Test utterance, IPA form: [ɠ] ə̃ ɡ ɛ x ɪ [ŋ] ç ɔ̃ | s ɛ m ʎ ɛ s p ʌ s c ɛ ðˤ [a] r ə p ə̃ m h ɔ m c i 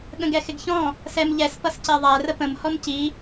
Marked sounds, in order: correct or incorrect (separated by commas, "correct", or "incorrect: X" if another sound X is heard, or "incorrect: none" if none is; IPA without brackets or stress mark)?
correct, incorrect: ɡ, incorrect: æ